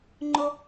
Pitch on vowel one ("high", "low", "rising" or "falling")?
high